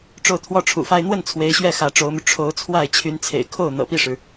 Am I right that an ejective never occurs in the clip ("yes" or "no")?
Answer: yes